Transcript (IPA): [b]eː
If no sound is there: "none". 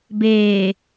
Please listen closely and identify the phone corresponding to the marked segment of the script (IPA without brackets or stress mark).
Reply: b